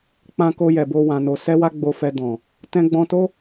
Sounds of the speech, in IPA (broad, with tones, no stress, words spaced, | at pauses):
k͡pã˧ko˧jɛ˨bo˧ wã˧no˧ sɛ˦wa˦ɡ͡bo˧fɛ˧ dɔ̃˨ | tɛ̃˧ɡ͡bɔ̃˧to˦